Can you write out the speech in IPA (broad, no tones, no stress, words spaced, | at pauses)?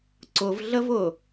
ǀʊvɮəvʊ